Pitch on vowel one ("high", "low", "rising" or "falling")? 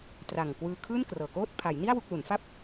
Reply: low